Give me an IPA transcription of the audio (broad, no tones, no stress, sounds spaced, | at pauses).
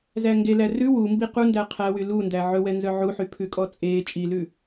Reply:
z æ ŋ ɡ e l æ r ʉ w u m b i q u n d æ qʰ æ w y l u n d æ ʕ ɵ w ɛ n z œ ʕ u ħ y pʰ ʉ kʼ ɔ t͡sʼ eː t͡ʃʼ i l ʉ